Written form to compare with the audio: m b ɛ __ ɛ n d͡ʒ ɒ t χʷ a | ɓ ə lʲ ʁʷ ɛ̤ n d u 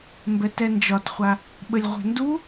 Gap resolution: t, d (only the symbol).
t